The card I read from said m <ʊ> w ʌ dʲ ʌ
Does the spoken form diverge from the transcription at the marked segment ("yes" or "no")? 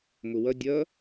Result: no